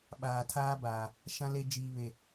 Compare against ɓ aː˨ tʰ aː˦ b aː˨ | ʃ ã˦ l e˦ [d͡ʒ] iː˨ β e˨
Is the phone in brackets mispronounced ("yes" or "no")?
no